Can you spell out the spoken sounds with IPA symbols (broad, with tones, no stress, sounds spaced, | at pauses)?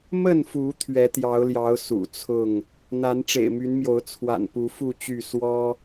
m ə˥˨ n f u˨˦ t̪ʰ ɥ ɛ˨˦ t̪ j ɑ˨˦ ʊ̯ l j ɑ˨˦ ʊ̯ s ṵ˨˩ t͡sʰ ʊ˥˨ ŋ | n̪ a˨˦ n ʈ͡ʂ ḛ˨˩ ɪ̯ m y˨˦ n m j o˨˦ ʊ̯ t͡sʰ w a̰˨˩ n p u˨˦ f u˥˨ t͡ɕ y˥˨ s w ɔ˦